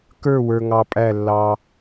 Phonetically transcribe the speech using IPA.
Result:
k ə˞˦˨ w ə˞˨ ŋ ɑ˨ pʼ æ˦˨ lː ɑ˦

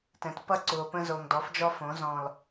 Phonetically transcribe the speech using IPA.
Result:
t ɛ̃˨ t p ʌ˦˨ ǀ u˨ o̯ p ə̃˦ z o˨ ŋ d ɔ˨˦ f d͡ʒ ɔ˦ f õ˨˦ z ɔ̃˨ l

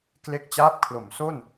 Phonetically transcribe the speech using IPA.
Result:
k l e˦˥ k̚ t͡ɕ aː˦˥ p̚ kʰ l o˩˦ m s o˥˩ n

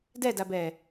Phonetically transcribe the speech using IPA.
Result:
d ɛ d a b ɛː

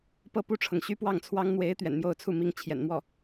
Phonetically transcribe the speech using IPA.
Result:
p ɤ˥˧ p u˥˩ ʈ͡ʂʰ ɤ˩ ŋ ɕ y˥ p w ɑ˥˩ ŋ t͡sʰ w ɑ˥ ŋ n̪ w e˧˥ ɪ̯ t̪ ɥ ɛ̰˨˩ n m j o˥˧ ʊ̯ t͡sʰ u˥˩ m i˥ ŋ t͡ɕʰ j ɛ̰˨˩ n m w ɔ˥˩

